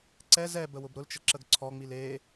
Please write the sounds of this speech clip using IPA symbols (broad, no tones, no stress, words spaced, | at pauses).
ǀɛz ɛ bəwʊbɾʊlt͡ʃə ǁəɡǀʰɔŋ͡mil e